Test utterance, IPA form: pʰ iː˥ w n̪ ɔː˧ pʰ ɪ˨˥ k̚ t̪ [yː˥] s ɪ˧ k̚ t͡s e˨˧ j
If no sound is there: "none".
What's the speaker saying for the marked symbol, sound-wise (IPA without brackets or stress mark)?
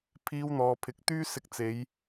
yː˥